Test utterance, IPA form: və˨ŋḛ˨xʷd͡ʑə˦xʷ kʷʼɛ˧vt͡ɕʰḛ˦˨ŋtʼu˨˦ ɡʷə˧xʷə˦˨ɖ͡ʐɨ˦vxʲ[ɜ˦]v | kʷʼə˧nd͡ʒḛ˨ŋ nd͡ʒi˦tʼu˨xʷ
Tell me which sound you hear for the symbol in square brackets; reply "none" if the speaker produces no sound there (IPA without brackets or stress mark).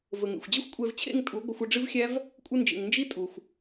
æ˦